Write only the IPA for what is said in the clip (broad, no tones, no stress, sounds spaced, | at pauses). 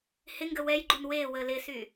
h ɪ ŋ ɡ ə w ɛ j ɡ͡ǃ u n w e w ə l ɪ s y